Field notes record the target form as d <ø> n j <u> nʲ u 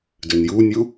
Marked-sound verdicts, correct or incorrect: correct, correct

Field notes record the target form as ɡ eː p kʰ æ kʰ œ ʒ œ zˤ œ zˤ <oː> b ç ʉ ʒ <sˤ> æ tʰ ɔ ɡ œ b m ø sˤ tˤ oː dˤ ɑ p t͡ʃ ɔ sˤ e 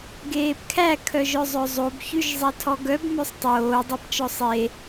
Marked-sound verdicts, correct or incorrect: incorrect: o, incorrect: zˤ

